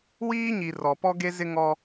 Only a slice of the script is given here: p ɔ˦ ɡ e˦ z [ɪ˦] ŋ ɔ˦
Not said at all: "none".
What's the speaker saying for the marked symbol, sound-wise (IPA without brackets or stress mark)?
ɪ˦